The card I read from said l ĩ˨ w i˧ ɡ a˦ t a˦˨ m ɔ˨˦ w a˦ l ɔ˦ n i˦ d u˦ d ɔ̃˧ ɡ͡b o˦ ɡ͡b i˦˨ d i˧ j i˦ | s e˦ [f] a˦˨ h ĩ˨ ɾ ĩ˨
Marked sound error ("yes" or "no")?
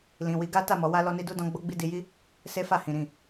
no